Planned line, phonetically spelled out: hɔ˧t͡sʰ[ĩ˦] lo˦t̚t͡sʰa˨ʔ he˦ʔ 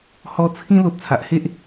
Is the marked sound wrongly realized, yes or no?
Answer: no